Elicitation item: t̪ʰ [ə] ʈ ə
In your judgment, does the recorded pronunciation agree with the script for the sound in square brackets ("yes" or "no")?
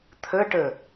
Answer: yes